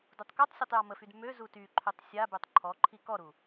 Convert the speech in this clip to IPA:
dutˤkutˤsʲetˤ jɔməfyd mø zutyǃʰøtˤ sʲabøtˤ ǃʰɔǃʰi kɔɾu

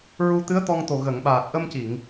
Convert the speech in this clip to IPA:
ɹu˧t̪ɨ˧˥ə̯t̪ɔ˧ŋt̪o˨˩ ɣə˨˩˨ŋɓaː˨˩t̚ ʔə˧mci˨˩˨ŋ

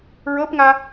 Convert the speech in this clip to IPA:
ɹɤpŋa

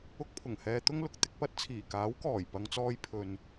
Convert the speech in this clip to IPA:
ʊ˧k̚pʰʊ˨˩ŋhɛː˨ t̪ʊ˥ŋlʊ˨k̚ t̪ɪ˨˥k̚pɐ˨˥t̚t͡sʰiː˨˩ kaː˨˥wkɔː˨˩j pɐ˨ŋt͡sɔː˧j pʰɵ˨n

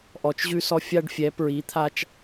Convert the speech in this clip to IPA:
ʔɔ˩˧t͡ʃ ʑʉ˧sɔ˧ fʲa˧ɖfʲɛ˩˧pɹi˩˧t̪ʰa˧t͡ʃ

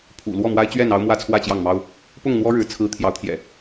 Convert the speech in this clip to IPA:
pʰṵ˨˩ lwɔ˥˨mwa˦ɪ̯t͡ɕɥɛ˥˨n ɑ˦ʊ̯mwä˥˨t͡sʰwä˥˨ t͡ɕjɑ˥˨ŋmɑ˦ʊ̯ | pʊ˥˨ŋn̪wɔ˦ ɻɻ̩˨˦ t͡sʰɹ̩˦ t̪ʰjɑ˨˦ʊ̯t̪ʰjɛ̰˨˩

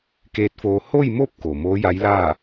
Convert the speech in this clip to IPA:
keː˧˥t̚foː˧ ho˥˨jmo˥˨p̚ koː˩moː˧˥ja˧˥jlaː˥˨

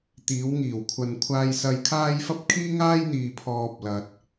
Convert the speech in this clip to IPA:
t̪iː˨˧wŋiː˨˩wkʷʰɐ˨nkʷʰaː˧j sɐ˨jkʰaː˧j fɐ˧p̚kʰiː˧ŋaː˧j n̪iː˨pʰɔː˨p̚ lɐ˨t̚

